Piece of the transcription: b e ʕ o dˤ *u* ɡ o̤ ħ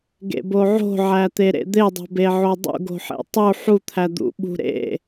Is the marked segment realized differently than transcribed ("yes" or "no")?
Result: yes